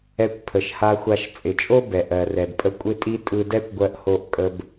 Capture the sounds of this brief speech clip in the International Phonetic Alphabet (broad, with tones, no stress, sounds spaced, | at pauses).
ɛ˧ kʷ pʰ ə˩ ʃ h a˧ xʷ a˧ ʃ t͡sʼ ɪ˩ t͡ʃʼ o˥ b ɛ˩ ʔ ɜ˩ r ɛ˩ d pʼ ə˧ kʷʼ ɪ˥ tʼ i˥ tʼ ɯ˧ d ɛ˥ kʷ ɡʷ ɜ˧ ʔ h o˧ ʔ kʼ ə˧ b